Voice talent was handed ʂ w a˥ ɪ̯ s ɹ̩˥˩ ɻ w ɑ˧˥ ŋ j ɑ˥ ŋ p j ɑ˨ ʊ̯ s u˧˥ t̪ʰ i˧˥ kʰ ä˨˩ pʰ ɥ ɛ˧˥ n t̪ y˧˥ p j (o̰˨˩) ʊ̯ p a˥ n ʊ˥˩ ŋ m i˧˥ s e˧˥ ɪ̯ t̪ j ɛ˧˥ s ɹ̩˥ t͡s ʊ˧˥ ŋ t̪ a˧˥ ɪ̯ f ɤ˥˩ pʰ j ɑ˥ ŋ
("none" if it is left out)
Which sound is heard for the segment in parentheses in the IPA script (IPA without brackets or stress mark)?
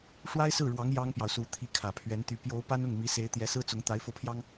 o˧˥